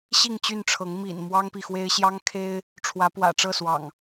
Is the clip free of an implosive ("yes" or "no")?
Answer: yes